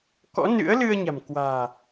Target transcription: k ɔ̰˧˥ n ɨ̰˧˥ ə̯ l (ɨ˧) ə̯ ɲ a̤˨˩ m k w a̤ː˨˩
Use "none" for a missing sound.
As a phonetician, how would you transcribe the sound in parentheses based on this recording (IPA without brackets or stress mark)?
ɨ˧